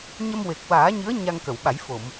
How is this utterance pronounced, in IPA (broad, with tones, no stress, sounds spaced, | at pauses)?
ɲ ə˧ m w e˨˩ k̚ w aː˨˩˦ ɲ ɨ˧˥ ə̯ ɲ a˧ ŋ k ə˨˩˨ w ɓ a˨˩˦ j f o˨˩˨ m